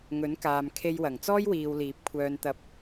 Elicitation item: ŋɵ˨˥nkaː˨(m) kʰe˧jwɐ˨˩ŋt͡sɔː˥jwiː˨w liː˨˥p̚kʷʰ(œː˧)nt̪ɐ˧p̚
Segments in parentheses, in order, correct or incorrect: correct, correct

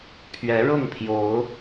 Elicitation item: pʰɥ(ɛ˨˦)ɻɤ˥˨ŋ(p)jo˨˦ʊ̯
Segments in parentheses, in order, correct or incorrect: correct, incorrect: pʰ

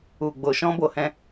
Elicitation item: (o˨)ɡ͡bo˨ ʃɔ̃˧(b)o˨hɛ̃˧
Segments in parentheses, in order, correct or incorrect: incorrect: u˨, correct

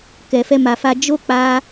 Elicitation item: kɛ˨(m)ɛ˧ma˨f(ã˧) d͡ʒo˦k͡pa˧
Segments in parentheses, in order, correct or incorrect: incorrect: f, incorrect: a˧

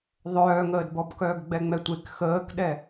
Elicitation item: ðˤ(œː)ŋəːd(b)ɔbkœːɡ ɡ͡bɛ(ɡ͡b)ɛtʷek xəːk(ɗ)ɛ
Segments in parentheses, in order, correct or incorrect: correct, correct, incorrect: ŋ͡m, correct

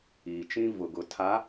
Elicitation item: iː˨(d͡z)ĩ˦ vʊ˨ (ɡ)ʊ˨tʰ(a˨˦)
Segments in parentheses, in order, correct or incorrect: incorrect: t͡ʃ, correct, correct

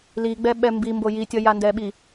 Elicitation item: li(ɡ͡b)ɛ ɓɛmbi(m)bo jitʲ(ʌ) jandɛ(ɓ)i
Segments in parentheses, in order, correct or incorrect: correct, correct, correct, correct

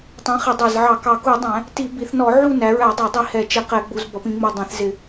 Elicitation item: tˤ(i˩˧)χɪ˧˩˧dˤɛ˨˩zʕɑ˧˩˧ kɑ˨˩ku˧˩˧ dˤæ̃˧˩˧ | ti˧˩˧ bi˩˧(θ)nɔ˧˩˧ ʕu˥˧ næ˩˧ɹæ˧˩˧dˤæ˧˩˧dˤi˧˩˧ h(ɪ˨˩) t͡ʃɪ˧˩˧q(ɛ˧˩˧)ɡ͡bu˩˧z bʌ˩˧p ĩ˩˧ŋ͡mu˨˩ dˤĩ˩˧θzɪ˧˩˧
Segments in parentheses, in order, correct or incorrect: incorrect: ĩ˩˧, correct, incorrect: ɛ˨˩, correct

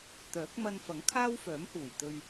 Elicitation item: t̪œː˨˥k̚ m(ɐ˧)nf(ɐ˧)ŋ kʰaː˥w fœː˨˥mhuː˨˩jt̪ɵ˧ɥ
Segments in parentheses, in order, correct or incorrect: correct, incorrect: ɐ˨˥

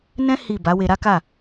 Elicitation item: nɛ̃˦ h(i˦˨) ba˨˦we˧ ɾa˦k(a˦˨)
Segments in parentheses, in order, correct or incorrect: correct, correct

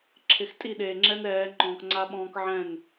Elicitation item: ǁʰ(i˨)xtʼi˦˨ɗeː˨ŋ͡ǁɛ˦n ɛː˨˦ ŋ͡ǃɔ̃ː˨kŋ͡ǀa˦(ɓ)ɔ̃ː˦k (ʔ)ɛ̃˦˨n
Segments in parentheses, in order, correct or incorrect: incorrect: ɪ˨, correct, incorrect: ʕ

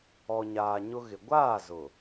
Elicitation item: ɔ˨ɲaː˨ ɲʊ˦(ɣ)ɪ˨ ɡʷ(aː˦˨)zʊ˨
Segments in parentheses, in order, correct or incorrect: correct, correct

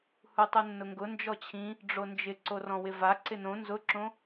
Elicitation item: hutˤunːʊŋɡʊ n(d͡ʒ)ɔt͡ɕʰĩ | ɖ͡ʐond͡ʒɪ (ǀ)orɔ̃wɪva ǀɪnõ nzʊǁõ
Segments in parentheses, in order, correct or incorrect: correct, correct

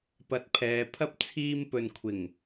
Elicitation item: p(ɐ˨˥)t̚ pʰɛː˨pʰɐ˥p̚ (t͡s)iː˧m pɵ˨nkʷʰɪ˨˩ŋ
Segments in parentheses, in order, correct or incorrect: incorrect: ɐ˨, incorrect: t͡sʰ

